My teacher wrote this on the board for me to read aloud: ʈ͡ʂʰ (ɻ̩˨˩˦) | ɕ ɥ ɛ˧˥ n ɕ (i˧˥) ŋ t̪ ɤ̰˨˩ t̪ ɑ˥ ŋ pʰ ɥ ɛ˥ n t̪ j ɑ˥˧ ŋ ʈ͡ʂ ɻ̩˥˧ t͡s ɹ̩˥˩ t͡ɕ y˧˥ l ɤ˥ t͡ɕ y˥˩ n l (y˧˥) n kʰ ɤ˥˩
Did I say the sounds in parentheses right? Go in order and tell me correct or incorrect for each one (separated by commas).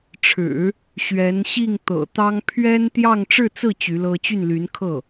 correct, incorrect, correct